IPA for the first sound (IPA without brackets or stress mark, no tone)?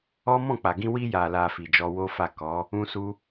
ɔ